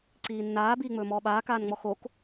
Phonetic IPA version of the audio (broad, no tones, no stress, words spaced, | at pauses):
ǀiːnːaː biːŋ͡mɵːmɔːɓaː kaːnŋ͡mɔxok